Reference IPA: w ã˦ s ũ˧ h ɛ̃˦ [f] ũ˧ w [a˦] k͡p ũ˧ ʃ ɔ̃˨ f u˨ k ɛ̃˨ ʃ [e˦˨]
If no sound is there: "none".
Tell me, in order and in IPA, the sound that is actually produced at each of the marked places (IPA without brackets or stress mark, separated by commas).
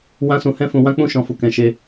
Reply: f, ã˦, e˧